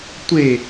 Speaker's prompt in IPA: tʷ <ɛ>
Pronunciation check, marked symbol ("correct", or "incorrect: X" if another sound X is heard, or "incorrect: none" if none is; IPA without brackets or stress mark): incorrect: e